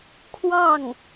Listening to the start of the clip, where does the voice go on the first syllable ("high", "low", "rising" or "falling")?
falling